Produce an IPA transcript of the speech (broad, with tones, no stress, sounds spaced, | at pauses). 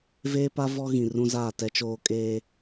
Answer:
v eː˦ p a˦ v ɔ˦ ɣ ĩ˨ r ũ˦ z aː˦˨ t ɛ˦ t͡ʃ oː˦ kʼ eː˦